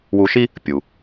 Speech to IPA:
w u˧ ʃ i˥ | pʲ u˩

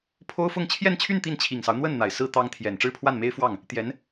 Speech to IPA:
pʰ o˥ ʊ̯ f ʊ˥˧ ŋ t͡ɕʰ j ɛ˥˧ n t͡ɕʰ y˥˧ n t̪ i˥˩ n t͡ɕʰ i˨˩ ŋ s ɑ˦ ʊ̯ n̪ w ə˥˩ n n̪ a˨˩ ɪ̯ s ɹ̩˥ t̪ ɑ˥ ŋ t̪ʰ j ɛ˨˩ n ʈ͡ʂ ɻ̩˥˧ pʰ w a˥˩ n m e˥ ɪ̯ f w ɑ˥˩ ŋ | t̪ j ɛ˧˥ n

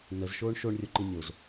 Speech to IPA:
n ə z ʃ oː ɳ ʃ o ɳ rʲ o ǃ i nʲ o z

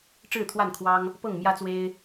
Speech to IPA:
ʈ͡ʂ ɻ̩˥˨ t̪ʰ w a˥˨ n kʰ w ɑ˦ ŋ | p ɤ˥˨ ŋ m j ä˦ t͡s w e˦ ɪ̯

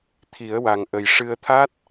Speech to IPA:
t̪ʰ i˨˩˦ ə̯ w a˨˩ ŋ ʔ ə˨˩ j ʂ ɨ˧ ə̯ t̪ʰ a˦˥ t̚

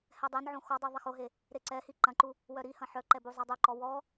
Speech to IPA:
h ɛ dˤ e n ʕ õ x ɔ dˤ ʉ ðˤ ɐ x o ɦ e | ɾ e ǀ ɛ h i ǃ ɐ̃ ǃ u | w œ ɾ i h ɐ̃ ħ œ ǃ ɛ b u zˤ ɛ dˤ ʉ ǃ ɔ w ɔ

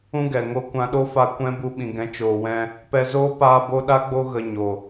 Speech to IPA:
ũ˦ ɡ ɛ˨ ŋ o˧ kʷ ã˧ ɗ o˦ f a˦ kʷ ɛ̃˦ b u˧ ɓ ĩ˨ ɡ ɛ̃˨˦ t͡ʃ oː˨ w ɛ̃˧ | p ɛ˧ z oː˦ p aː˧ b o˧ ɗ a˦ ɡ͡b o˧ ɣ ə˨ ɲ o˨

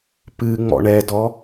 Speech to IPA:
p ɨ ŋ͡m ɔ̰ ɳ ɛ d ɔ

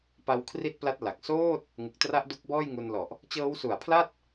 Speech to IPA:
p a˦˥ w kʰ r i˥˩ t̚ p l a˦˥ t̚ l a˨˩ k̚ s oː˥˩ t̚ | ŋ ɯ˨˩ k̚ t r a˦˥ ʔ d u˦˥ k̚ b ɔː˥˩ j ŋ u˧ n l ɔ˨˩ ʔ | t͡ɕ ɤː˦˥ w s u˨˩ a̯ pʰ l a˥˩ t̚

